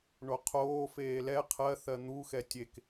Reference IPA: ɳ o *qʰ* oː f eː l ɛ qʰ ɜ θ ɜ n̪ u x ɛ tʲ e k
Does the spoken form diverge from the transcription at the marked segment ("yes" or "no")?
no